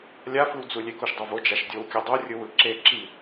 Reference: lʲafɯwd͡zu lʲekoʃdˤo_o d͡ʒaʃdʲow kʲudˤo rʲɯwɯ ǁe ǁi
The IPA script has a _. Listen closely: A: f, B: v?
B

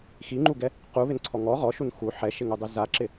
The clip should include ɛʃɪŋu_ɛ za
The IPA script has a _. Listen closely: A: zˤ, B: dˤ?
B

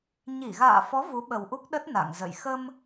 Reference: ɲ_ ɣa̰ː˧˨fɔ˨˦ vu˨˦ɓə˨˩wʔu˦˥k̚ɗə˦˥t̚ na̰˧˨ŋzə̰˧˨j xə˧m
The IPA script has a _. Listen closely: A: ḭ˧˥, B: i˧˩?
B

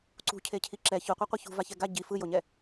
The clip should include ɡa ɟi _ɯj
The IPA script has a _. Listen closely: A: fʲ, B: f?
B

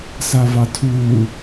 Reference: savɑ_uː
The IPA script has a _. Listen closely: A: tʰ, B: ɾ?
A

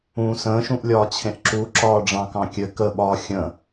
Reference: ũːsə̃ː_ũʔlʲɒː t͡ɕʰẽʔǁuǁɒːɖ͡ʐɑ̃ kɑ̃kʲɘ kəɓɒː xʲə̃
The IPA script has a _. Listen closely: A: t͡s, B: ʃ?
B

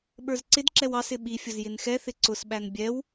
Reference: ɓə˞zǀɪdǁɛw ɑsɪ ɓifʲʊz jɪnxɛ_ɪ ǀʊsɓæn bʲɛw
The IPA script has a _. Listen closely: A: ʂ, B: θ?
B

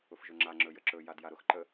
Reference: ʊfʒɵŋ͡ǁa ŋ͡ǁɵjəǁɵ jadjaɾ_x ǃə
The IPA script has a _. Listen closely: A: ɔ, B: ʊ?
B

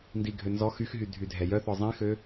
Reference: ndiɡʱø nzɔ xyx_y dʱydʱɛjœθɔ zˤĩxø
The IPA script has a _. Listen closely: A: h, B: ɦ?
B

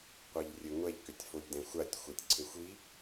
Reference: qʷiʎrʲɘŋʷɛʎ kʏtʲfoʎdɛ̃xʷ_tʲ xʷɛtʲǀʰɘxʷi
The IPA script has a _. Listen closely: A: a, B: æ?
A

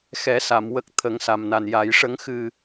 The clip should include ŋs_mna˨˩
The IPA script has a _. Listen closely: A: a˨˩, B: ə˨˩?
A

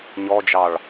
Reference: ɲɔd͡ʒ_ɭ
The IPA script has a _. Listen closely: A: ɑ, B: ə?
A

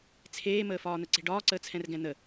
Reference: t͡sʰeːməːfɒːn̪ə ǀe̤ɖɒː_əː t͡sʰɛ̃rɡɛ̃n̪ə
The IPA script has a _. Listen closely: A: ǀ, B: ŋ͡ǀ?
A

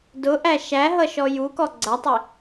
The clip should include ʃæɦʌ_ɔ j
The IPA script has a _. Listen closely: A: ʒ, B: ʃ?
B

